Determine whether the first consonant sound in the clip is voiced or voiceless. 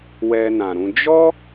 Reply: voiced